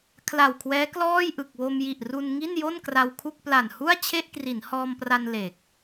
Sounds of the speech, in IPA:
kʰ l a˨˩ w kʰ w ɛː˦˥ k l ɔː˥˩ j ʔ ɯ˨˩ k̚ w o˧ m j i˨˩ ʔ r u˧ n ŋ i˥˩ n j o˥˩ n k r a˧ w kʰ u˥˩ k̚ p l a˨˩ n h u˥˩ a̯ t͡ɕʰ e˥˩ ʔ k r i˩˦ n h ɔː˧ m p r a˧ n l e˨˩ k̚

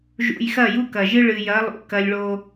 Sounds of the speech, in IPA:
ʒ ṵ˨ j x ɐ˦˨ j u˦ k ɐ˨ ʒ ɨ˦ ɭ ɨ˨ j ɐ˨˦ lˠ ṵ˨ k ɐ˦ lʲ ɭ o˦

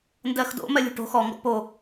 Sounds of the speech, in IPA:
n d ɜ x d o̰ m ɜ lʲ ṳ ʈ o̤ x ɔ ŋ ɡ ɔ̰ p o

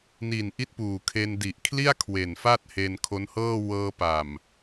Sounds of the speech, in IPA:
n i˨˩ n ʔ i˦˥ t̚ p uː˨˩ kʰ e˧ n d i˨˩ ʔ kʰ l i˥˩ a̯ kʰ w e˨˩ n f a˥˩ t̚ h e˧ n kʰ o˦˥ n h ɤː˥˩ w ɤː˧ p a˨˩ m

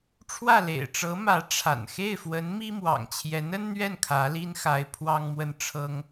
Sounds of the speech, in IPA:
ʈ͡ʂʰ w ä˥˩ l ḛ˨˩ ɪ̯ ʈ͡ʂ ɤ˧˥ m ä˧˥ ʈ͡ʂʰ a̰˨˩ n x e˥˩ ɪ̯ f w ə˧˥ n m i˥ m w ɑ̰˨˩ ŋ t͡ɕʰ j ɛ˧˥ n ə˥ n n̪ ɥ ɛ˥˩ n kʰ ä˧˥ l i˥ n x a˧˥ ɪ̯ pʰ w ɑ˥ ŋ m w ə˥˩ n ʈ͡ʂʰ ɤ˥ ŋ

